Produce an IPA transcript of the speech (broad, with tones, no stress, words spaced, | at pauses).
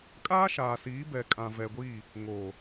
kʼaː˦ʃaː˨siː˨˦ bɛ˨kʼã˨ vɛ˨ɡʷiː˦˨ | ŋoː˨